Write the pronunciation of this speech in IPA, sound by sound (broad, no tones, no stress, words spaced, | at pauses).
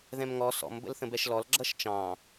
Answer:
ðɛ̃mŋɔ sɔ̰m bə̰lθə̃bɛʃlɔl ɡ͡ǁʌʃt͡ʃɑ̃